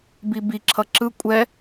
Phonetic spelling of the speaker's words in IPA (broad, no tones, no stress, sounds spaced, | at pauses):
b i b i ǁʰ ʌ ǁ ɯ kʷʼ ɛ